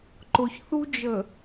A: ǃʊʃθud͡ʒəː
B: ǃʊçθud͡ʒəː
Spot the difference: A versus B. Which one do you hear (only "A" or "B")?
B